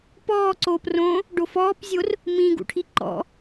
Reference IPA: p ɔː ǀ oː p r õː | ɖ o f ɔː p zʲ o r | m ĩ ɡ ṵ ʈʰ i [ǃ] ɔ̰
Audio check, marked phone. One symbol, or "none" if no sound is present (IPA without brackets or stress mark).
ǃ